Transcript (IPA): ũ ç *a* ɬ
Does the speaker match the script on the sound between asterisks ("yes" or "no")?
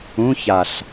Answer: yes